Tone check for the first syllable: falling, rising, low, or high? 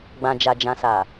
low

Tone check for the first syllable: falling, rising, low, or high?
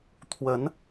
rising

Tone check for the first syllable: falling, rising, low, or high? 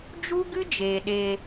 high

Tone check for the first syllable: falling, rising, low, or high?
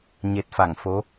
low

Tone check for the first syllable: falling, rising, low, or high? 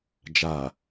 low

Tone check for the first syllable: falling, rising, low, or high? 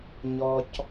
high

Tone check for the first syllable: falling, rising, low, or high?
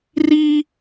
high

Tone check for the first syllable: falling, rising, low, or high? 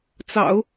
low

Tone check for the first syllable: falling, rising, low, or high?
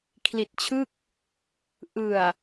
low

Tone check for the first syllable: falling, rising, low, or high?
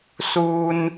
high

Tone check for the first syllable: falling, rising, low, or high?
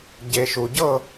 low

